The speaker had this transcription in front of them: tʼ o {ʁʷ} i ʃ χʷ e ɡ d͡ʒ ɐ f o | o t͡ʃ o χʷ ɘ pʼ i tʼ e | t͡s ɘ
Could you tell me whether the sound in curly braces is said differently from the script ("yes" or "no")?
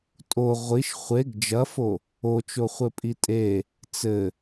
no